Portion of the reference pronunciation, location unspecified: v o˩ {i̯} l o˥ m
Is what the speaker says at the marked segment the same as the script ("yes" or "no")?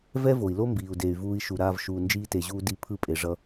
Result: yes